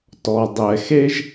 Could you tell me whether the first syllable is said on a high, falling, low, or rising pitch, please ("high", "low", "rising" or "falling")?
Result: low